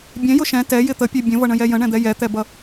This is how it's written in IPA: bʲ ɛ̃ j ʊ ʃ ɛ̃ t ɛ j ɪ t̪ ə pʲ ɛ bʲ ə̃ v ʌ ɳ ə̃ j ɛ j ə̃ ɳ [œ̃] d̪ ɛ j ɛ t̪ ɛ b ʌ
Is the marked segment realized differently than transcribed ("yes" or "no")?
yes